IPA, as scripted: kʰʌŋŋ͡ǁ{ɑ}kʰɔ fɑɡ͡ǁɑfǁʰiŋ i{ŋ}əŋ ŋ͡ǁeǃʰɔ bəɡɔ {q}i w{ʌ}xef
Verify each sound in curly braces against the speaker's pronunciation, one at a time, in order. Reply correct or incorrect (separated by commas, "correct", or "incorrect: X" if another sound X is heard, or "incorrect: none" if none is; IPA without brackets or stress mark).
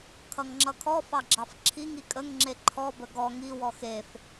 incorrect: ʌ, incorrect: kʼ, incorrect: ŋ, incorrect: ɔ